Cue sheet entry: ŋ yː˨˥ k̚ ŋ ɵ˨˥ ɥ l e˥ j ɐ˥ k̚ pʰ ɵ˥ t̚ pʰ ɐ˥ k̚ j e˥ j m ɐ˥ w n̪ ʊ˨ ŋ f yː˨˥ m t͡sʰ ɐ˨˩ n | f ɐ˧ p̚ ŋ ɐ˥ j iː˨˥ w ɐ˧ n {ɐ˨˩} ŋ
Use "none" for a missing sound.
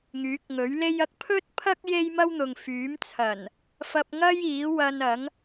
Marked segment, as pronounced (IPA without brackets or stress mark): ɐ˨˥